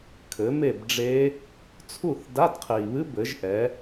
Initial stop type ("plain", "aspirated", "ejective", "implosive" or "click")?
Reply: aspirated